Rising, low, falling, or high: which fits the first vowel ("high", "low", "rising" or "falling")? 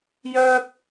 high